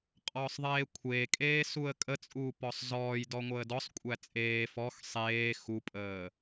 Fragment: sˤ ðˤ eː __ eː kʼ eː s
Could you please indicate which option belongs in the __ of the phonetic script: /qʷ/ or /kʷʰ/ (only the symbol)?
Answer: kʷʰ